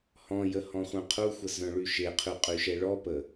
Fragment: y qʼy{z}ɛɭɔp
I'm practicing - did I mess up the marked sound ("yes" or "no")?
yes